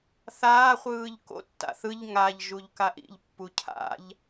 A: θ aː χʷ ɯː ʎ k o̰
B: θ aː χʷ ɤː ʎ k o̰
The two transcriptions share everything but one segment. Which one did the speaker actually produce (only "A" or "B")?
A